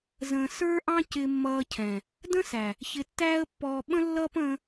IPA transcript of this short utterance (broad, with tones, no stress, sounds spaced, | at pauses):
z ə̃ː˧ s ə˞˦ ʔ ɑ̃˦ c ɪ˧ mː ʌː˧ cʰ ɛ̃˨ | d ə̃˦ s æ˨ | ç ɪ˧ tː æː˦ ə̯ pː ɔː˧ ɓ ə̃˦ lː ʌː˦ p ə̃ː˦